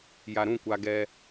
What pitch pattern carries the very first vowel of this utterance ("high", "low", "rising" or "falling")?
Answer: low